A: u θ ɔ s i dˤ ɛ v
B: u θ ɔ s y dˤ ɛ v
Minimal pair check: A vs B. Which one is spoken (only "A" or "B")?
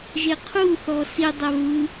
A